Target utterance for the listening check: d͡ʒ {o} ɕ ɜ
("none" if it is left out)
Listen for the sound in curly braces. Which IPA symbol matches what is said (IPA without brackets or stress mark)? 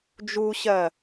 u